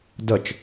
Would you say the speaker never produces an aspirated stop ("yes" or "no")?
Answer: yes